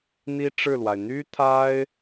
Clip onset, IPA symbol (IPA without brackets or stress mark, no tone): n̪